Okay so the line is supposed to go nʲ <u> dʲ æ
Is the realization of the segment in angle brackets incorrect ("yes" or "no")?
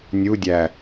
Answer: no